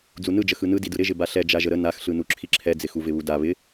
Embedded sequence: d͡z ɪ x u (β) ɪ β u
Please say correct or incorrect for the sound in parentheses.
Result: incorrect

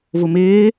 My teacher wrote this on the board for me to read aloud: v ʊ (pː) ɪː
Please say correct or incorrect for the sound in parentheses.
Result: incorrect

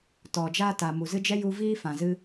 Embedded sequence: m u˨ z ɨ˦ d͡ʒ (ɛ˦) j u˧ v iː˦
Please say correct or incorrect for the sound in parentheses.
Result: correct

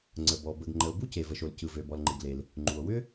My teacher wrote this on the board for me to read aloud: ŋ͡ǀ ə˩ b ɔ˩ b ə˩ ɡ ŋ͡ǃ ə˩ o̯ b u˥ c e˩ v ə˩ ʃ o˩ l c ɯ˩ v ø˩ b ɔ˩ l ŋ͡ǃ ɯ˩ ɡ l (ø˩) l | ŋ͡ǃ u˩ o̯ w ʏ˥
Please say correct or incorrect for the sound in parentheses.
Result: incorrect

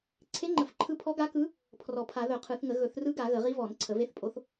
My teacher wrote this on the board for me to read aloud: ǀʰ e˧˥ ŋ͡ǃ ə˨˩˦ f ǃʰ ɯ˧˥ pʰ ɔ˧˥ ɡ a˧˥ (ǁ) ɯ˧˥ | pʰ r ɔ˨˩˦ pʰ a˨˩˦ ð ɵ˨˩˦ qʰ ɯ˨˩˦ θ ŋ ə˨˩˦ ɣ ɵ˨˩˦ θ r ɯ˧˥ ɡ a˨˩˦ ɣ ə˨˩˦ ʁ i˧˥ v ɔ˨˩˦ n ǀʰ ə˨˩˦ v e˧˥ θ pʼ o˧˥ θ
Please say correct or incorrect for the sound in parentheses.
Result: incorrect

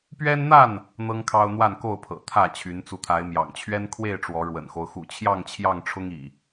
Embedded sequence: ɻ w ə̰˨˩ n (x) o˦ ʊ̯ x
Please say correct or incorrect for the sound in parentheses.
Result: correct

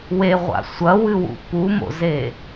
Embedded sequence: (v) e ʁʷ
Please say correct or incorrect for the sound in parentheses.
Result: incorrect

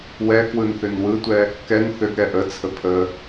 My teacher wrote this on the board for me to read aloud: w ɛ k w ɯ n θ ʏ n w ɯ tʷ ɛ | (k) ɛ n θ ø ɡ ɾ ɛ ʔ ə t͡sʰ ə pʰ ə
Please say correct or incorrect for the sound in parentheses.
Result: correct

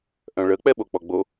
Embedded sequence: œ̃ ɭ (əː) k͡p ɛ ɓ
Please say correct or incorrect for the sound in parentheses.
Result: incorrect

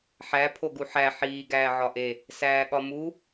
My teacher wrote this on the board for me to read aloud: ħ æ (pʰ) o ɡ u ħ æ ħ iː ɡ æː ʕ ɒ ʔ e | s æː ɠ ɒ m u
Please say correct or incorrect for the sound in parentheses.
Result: correct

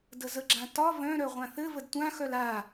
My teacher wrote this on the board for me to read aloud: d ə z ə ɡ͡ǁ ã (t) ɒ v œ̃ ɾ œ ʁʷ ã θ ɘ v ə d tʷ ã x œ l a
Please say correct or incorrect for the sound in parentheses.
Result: correct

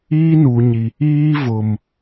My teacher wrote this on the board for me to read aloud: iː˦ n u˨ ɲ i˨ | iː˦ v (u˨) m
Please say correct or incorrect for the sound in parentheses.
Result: incorrect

